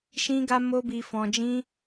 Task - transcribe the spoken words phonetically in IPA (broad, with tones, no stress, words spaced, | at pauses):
ʃĩ˧ɡa˧mo˧ bi˧fɔ̃˧ d͡ʒĩ˧